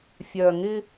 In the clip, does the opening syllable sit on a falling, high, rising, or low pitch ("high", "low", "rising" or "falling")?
low